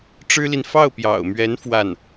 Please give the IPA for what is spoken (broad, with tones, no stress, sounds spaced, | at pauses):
ʈ͡ʂ ɻ̩˥ l i˨ n f ɑ˥˩ ʊ̯ p j ɑ̰˨˩ ʊ̯ m ɥ ɛ˧˥ n f w a˥˩ n